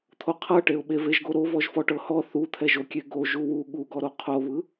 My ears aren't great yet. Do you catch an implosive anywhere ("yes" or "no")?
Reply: yes